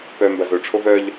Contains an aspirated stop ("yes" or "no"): yes